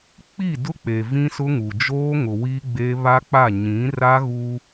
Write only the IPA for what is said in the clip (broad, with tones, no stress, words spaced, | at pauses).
k͡pi˦˨dʊ˦k͡pe˨ vĩ˦sʊ˦ŋu˨ d͡ʒoː˦ŋʊ˨ wi˦ɡ͡be˦ βa˦k͡pa˦˨ ɲĩ˨˦ra˦ɣuː˦